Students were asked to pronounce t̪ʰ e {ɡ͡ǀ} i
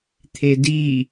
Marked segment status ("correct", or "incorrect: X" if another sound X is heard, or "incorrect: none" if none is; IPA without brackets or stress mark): incorrect: d